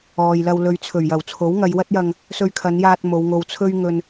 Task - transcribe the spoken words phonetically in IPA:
ɔː˨jlɐ˧w lɵ˨ɥt͡sʰɵ˨˩ɥjɐ˨˩w t͡sʰo˨˥wŋɐ˨˧jwɐ˥t̚jɐ˧ŋ | sɵ˧ɥkʰɐ˨˧njaː˧t̚ mo˨˧wŋo˧wt͡sʰɵ˥ɥ ŋɵ˨n

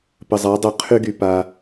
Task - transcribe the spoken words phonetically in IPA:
pə˨zˤa˨˦ dˤo˧qʰy˦ɡy˧pa˧

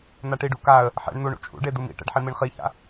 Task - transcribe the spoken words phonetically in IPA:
naʈiɖṳ kaə̯ | ħɛ̰ɳ nuɳṵ t͡ʃʼṵɖe dumḭʈɛ̰ɖ ħimiɳχiça̰

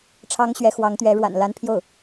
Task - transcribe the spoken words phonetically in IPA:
ʈ͡ʂʰɑ˥ŋɕɥɛ˧˥ xwɑ˧˥ŋt̪ɥɛ˧˥ɻwa̰˨˩n la˧˥n pʰjo˥˩ʊ̯

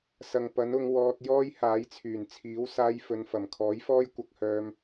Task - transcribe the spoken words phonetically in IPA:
sɐ˨ŋpɐ˨˥nʊ˧ŋwɔː˧t̚ jɔː˥jhaː˨˥jt͡sʰyː˨˩nt͡sʰiː˨˥w saː˧jfɵ˨nfɐ˨˩m kʰɔː˨˥jfɔː˥j kʷɐ˧k̚hœː˧m

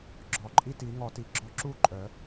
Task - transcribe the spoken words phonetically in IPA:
ɡ͡ǁɔ˨˩˦ǃʼi˥ ti˨˩˦ŋɔ˨ti˨ ɡ͡ǁɔ˧˥ǁu˥˧ ǃʼœ˨˩˦

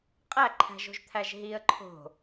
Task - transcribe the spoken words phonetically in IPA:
qʼæǃʰæ̤ʒo̤ʒ t̪ʰæʒɦiə̯ ǃʰo̤

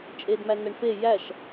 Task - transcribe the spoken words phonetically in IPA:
t͡ʃʼedmænəɳfe jæʃ

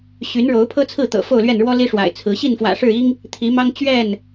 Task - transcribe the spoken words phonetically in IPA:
ɕy˨˦nɻo˨˦ʊ̯ pʰɤ˦t͡sʰɹ̩˥˨ t̪ɤ̰˨˩fo˥˨ʊ̯lɥɛ˥˨nɻwɔ˦ li˦ʂwa̰˨˩ɪ̯t͡sʰɹ̩˨˦ ɕi˥˨nfwä̰˨˩ʂɻ̩˥˨i˦ŋ | t̪ʰi˨˦mɑ˦ŋ t͡ɕɥɛ˥˨n

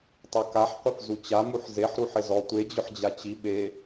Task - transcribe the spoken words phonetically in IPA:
tˤɛkaħ qʷɪfzut͡ɕa muħzeħ ɾuħɪzɔ tʷe d͡ʑʊħd͡ʑat͡ɕi ɓe

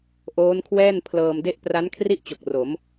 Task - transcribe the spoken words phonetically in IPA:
ʔoː˦˥nkʰwɛː˥˩n pʰlɤː˧mde˥˩ʔ pra˦˥nkʰri˥˩ʔt͡ɕo˨˩k̚ ro˩˦m

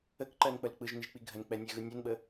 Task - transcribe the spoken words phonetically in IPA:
əkǃɜnk͡pəl k͡pɯʒniʒk͡pi ɡʱənk͡pɛnʲɛɣɯ nʲɜnɓə

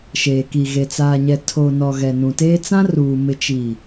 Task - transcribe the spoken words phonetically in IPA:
ʃeː˨ki˨ɣe˨ t͡saː˨ɲɛ˨ tʰo˨ nɔ˨ ɣɛ˨nũ˨teː˦ t͡sã˦ruː˨ mɪ˨t͡ʃi˨

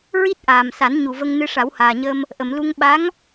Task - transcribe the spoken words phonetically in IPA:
ɹi˦˥t̚ ʔaː˨˩msa˨˩˦n ɲu˨˩˨və˧ŋnɨ˧ ʂa˨˩˦whaː˨˩ɲəː˧m | ʔə˨˩˨mlu˧ŋ ɓa˧˥ŋ

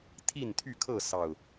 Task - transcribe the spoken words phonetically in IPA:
t̪ʰi˥˨nt̪ʰy˥˨kʰɤ˥˨ sɑ˥˨ʊ̯

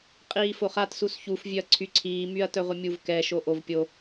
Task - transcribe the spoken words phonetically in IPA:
qʼiːfoχat susçuf vʲøɐ̯ǀʰy ǀʰiː myɐ̯tœʁʷəmʲuv kɛ ʃoʔov pʲo

